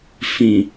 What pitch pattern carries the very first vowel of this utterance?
low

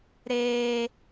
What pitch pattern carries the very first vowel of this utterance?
high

